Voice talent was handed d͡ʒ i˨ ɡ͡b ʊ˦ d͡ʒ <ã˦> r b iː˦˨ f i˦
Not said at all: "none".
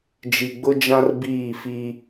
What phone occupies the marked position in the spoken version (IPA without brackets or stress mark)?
ã˦